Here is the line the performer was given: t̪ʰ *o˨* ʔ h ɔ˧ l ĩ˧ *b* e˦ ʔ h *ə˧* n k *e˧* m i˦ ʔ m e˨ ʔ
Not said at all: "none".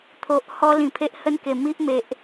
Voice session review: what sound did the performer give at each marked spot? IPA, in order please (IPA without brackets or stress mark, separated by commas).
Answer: o˨, pʰ, ə˦, e˨˩